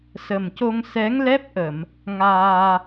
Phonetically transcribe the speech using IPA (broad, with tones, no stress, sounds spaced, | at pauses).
s ə˨˩ m c o˧ ŋ s ɛ˧˥ ŋ l ɛ˦˥ p̚ ʔ ə˨˩˨ m | ŋ aː˧